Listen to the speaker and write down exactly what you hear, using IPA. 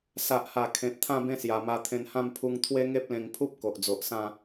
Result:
s a˨ ʔ h a˨˩ kʰ ẽ˨ t̚ t̪ʰ ã˥˧ b ẽ˥˧ s j a˨˩ m a˧ t̪ʰ ẽ˧ n h ã˥˧ m pʰ u˧ ŋ t̪ʰ w e˦ ŋ e˦ p̚ l ẽ˧ ŋ pʰ u˦ p̚ k o˨ ʔ d͡z o˨ ʔ s ã˥˧

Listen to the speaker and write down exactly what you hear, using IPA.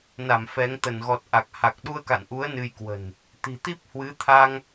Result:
n a˧˩ m f ɛ˨˦ ŋ t̪ ə˧˩ n ɣ ɔ˨˩ t̚ ʔ a˨˩ k̚ h a˨˩ k̚ ɗ u˧ ə̯ k a̰˧˨ n ʔ u˨˦ ə̯ n ɨ˧ j k w ə̤˨˩ n | t̪ i̤˨˩ t̪ i˦˥ p̚ h w ɨ˨˦ t̪ʰ a˧ ŋ

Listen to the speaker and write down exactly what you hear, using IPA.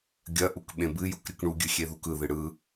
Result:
ɡʲ ɐ ʔ u k ɓ ẽ b ɨ j u k ɾʲ ɯ k ɳ u ɡʲ ɨ xʲ e ð u k ɯ ð ɨ ɽ ɯ

